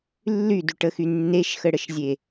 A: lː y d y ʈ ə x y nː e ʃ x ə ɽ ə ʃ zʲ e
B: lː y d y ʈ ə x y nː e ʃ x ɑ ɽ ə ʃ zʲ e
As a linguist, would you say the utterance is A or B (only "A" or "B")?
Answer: A